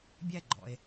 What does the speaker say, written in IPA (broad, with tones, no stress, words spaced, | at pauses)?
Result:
bʲæ˥˨ɡ͡ǃɔ̰˨e̯